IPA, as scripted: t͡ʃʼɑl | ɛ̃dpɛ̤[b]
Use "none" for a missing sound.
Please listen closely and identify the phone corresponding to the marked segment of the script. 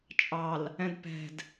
d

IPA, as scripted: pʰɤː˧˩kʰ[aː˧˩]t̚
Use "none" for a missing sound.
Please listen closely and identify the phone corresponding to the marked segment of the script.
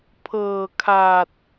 aː˧˩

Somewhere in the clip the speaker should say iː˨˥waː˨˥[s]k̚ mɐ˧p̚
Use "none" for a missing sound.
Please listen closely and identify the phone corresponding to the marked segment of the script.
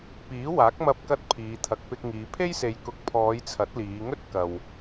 none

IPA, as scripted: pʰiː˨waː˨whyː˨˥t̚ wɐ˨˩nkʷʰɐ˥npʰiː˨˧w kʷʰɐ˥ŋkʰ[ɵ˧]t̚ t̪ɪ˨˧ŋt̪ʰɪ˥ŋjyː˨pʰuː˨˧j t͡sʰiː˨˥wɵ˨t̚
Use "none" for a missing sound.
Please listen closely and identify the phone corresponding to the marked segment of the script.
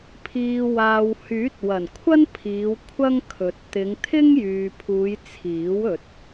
ɵ˨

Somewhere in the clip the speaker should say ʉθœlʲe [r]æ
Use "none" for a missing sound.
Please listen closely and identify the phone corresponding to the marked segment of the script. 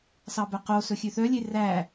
r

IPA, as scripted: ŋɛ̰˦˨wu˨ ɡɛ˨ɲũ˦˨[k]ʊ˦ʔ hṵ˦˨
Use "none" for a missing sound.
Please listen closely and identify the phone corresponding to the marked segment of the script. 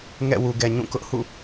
k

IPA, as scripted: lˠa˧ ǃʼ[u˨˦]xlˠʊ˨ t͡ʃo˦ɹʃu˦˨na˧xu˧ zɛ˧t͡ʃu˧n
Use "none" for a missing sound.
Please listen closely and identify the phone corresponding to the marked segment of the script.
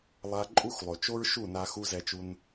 u˦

